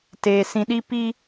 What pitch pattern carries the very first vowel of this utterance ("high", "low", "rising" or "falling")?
low